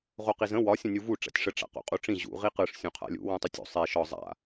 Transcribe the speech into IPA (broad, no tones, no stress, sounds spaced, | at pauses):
ʁ o q i z ə̃ w ɒ sʲ ə̃ nʲ u v u ʈ͡ʂ a̰ tʲ ʂ ə ʈ͡ʂ a̰ q o̰ qʼ u ʈ͡ʂ ĩ ʑ ṵ ʁ i q ɯ ʂ sʲ ũ qʰ a̰ lʲ ṵ w ũ tˤ ə tʲ o̰ sˤ i ʃ ɒ zˤ a̰